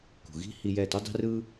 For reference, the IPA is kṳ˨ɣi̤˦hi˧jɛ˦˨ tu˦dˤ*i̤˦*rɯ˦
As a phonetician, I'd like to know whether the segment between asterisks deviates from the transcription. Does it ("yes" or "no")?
no